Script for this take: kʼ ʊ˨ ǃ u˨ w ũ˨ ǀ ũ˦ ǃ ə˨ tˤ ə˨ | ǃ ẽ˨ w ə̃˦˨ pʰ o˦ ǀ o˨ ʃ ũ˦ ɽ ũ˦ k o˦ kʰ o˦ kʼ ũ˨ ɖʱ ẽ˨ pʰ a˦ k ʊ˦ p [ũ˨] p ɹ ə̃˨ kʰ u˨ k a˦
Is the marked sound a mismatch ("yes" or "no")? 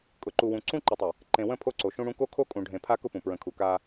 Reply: no